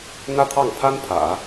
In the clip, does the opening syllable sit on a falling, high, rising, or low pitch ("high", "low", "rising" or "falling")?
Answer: high